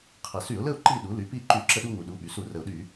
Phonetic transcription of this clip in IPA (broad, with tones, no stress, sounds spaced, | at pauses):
qʰ ɛ˩ s y˧˩˧ ʊ̯ l ə˥˨ ʊ̯ ǃ i˥˨ ɗ u˩˥ l y˩˥ p i˥˨ ǃ y˧˩˧ ǁ ə˧ ɗ u˧ ŋ u˩ ɗ u˩˧˩ ɓ y˩ s u˧˩˧ r ə˩ ʊ̯ ɗ y˧˩˧